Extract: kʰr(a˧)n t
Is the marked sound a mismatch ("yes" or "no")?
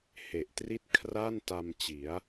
yes